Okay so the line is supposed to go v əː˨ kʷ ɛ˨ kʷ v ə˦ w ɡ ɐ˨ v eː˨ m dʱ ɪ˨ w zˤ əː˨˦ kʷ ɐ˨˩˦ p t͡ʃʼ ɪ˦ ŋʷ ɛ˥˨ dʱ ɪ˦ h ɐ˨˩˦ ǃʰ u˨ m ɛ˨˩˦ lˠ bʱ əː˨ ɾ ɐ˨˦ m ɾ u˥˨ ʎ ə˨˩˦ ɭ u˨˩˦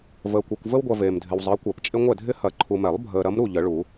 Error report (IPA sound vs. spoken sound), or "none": ɡ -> ɡʷ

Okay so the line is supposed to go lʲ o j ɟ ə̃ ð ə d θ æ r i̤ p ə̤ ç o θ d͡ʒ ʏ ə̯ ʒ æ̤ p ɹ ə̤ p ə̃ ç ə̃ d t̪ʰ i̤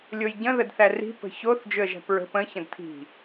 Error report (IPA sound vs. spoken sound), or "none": none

